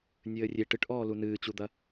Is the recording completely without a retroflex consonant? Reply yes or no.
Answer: no